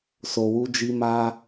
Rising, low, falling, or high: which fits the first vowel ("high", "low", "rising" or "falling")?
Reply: low